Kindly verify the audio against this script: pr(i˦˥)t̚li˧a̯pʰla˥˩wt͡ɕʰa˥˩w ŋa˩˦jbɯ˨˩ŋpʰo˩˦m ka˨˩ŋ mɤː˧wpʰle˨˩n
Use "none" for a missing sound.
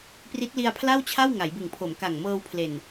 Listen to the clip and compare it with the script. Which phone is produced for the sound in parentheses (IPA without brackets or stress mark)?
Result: i˦˥